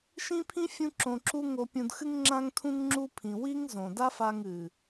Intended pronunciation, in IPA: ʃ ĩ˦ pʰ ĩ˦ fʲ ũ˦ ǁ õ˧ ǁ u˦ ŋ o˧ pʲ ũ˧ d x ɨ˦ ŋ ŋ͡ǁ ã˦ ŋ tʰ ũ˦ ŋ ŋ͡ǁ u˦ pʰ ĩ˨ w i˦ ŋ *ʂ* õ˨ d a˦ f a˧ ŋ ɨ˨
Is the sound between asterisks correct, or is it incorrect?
incorrect